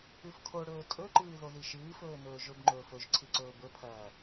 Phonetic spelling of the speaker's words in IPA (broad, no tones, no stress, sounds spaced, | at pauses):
ʉ f kʰ o ɽ ɵː tʼ ɵ ǃ ɨː ð o ð i ʃ ɨː f ɵː n ɵː ʒ ɵ b ŋ͡ǃ ɵː f ɵ ʒ ǀʰ i ǀ ɵː b ɵ pʰ ɐː